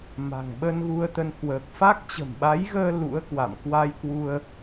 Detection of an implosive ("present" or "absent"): present